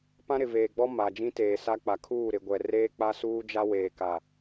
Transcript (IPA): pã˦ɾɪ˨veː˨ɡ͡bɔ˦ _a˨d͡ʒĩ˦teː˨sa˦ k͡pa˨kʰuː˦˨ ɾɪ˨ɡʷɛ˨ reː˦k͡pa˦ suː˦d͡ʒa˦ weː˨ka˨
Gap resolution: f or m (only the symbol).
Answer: m